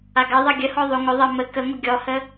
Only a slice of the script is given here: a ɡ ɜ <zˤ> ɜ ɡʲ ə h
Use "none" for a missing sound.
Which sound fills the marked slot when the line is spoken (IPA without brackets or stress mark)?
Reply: ðˤ